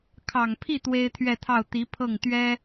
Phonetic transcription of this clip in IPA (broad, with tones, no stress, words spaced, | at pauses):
kʰɑ˨˩ŋpʰi˥˩ t̪we˥ɪ̯t̪ʰɥɛ˥˧t̪ʰɑ˥˩ʊ̯ t̪i˧˥pʰɤ˥˩ŋ t̪ɥɛ˥